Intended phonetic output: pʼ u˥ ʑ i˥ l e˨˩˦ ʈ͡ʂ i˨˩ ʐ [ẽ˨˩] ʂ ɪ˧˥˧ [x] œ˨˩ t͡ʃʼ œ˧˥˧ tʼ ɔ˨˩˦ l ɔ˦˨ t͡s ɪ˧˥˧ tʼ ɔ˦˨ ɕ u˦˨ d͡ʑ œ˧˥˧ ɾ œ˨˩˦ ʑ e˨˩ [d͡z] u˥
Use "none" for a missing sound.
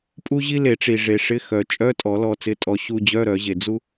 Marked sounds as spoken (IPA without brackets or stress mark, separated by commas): e˨˩, x, d͡z